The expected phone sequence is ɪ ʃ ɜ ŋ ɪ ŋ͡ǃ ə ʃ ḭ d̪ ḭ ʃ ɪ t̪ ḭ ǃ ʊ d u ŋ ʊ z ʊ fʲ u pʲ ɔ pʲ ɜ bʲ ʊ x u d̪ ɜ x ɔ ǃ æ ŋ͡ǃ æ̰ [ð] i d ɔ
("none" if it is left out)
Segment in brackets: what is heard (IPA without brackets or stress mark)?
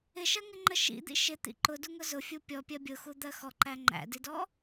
d